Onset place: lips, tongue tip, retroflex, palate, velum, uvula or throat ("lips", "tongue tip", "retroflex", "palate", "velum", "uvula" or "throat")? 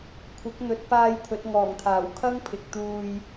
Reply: velum